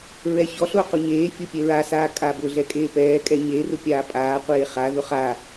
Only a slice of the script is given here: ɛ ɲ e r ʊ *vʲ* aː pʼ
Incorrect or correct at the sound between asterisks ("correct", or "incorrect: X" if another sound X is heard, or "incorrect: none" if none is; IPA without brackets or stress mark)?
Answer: incorrect: pʲ